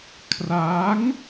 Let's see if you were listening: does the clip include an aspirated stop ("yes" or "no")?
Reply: yes